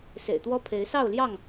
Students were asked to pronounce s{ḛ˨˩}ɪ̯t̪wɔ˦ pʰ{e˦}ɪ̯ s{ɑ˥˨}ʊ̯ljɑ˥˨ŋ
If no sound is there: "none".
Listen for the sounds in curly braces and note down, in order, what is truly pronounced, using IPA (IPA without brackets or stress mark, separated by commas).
ḛ˨˩, e˨˦, ɑ˥˨